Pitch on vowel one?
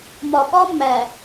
low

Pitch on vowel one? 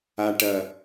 low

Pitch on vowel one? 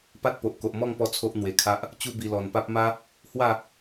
high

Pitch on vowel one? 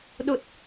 low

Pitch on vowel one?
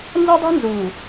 high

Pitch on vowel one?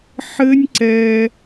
high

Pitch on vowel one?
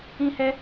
high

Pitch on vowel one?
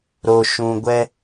low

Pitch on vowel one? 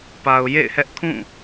low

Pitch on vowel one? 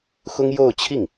high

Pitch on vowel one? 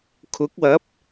rising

